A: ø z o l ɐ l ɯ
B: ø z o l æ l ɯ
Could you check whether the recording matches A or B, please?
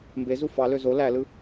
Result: B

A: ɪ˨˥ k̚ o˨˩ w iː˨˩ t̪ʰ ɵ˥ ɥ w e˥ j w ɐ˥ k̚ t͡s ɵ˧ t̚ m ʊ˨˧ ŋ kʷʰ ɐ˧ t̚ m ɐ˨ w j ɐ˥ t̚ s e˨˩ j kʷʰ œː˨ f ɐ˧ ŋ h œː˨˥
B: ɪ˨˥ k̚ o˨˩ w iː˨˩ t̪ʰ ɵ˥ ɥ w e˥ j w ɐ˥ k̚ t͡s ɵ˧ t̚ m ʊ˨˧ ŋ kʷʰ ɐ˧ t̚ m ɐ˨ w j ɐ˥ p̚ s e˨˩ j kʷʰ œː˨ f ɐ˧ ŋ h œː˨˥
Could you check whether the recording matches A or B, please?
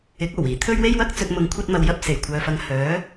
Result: B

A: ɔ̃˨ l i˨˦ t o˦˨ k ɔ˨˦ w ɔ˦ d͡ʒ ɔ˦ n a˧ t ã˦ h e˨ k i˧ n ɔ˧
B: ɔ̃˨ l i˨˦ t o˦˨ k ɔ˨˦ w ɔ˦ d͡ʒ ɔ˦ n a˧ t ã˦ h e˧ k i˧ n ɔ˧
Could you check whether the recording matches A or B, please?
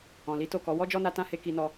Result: B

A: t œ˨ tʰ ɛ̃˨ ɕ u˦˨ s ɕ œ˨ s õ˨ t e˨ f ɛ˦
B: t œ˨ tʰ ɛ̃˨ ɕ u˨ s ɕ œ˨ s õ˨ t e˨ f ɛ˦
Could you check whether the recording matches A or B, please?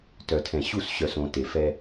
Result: A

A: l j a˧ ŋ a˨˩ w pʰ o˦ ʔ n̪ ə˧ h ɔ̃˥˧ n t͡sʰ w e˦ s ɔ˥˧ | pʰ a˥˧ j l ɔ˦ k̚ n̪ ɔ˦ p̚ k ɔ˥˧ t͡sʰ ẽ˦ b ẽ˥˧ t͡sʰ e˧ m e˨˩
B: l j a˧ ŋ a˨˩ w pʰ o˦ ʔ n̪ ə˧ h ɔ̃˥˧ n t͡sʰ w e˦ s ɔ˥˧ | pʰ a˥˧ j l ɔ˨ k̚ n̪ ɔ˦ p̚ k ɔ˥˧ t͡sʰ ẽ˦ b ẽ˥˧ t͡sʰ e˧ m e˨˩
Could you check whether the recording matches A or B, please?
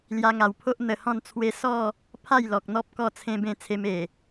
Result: B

